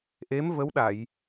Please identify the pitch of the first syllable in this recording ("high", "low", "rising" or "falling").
rising